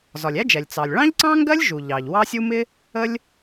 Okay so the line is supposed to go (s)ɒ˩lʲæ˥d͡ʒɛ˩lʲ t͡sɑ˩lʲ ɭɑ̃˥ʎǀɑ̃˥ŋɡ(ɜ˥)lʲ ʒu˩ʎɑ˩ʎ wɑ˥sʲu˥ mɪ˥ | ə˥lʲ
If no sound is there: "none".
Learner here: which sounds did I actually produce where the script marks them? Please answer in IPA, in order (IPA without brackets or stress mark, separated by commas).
z, ɜ˥